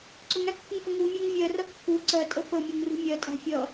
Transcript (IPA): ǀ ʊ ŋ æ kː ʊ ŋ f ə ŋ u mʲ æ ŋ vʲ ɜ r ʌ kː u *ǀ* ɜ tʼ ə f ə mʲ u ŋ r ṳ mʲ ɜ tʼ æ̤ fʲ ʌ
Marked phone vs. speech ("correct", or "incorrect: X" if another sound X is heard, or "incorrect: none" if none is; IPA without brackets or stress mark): correct